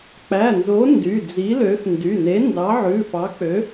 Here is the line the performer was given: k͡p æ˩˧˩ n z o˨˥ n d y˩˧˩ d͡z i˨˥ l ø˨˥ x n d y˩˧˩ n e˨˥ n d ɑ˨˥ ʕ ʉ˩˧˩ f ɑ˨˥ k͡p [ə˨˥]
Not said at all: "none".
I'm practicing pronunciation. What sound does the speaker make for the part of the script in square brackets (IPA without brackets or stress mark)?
ø˨˥